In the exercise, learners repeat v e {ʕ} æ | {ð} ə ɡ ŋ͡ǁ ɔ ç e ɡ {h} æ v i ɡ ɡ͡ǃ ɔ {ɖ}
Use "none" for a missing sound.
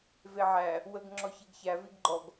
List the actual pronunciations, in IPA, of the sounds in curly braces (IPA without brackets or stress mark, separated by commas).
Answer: ʕ, w, ç, ɡ